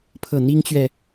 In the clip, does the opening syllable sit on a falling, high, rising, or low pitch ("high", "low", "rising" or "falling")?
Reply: falling